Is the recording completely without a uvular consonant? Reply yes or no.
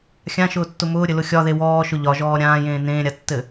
yes